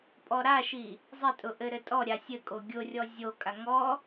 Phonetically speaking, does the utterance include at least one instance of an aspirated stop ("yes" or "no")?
no